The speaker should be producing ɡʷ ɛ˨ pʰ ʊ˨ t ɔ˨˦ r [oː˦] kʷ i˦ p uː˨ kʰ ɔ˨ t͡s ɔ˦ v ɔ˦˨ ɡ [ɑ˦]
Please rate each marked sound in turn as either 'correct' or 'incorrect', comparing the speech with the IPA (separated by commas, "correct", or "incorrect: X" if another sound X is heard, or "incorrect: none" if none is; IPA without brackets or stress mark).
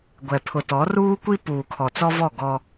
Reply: incorrect: uː˦, incorrect: ɔ˦